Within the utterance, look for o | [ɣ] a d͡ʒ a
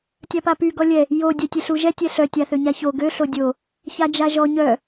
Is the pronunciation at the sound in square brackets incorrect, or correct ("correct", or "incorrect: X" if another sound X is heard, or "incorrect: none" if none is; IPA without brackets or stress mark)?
incorrect: ç